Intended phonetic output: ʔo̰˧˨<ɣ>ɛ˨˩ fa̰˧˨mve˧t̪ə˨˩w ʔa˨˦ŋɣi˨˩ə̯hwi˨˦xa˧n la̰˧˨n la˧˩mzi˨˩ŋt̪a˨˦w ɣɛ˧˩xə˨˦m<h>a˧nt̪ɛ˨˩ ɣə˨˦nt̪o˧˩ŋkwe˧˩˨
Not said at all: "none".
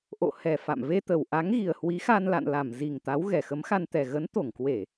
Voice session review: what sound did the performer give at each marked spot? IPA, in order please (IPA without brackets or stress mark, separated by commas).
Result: h, x